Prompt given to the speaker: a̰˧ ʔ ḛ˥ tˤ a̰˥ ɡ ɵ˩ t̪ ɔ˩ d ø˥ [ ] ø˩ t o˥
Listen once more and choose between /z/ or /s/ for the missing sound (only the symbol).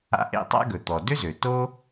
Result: z